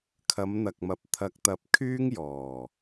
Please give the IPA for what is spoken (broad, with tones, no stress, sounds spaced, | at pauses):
kʰ ɐ˨˧ m n̪ ɐ˨ k̚ m ɐ˨ p̚ t̪ʰ ɐ˧ k̚ t̪ ɐ˧ p̚ kʰ yː˥ ŋ j ɔː˨˩